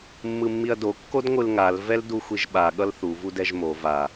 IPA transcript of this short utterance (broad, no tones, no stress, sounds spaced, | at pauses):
mː ɯ mː i ɐ̯ d o kː o d ŋʷ ɯ l ŋ a l v ɛ l d u xʷ i ʒ ɓ a ɠ ʌ l θ u v u d ɛ ʒ m o v a